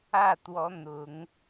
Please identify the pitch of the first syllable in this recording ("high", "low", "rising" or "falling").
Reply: falling